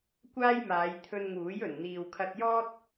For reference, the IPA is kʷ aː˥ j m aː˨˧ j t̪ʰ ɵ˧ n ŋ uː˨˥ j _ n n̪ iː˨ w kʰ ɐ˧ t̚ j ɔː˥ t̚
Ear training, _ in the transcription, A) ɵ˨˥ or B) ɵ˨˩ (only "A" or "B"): B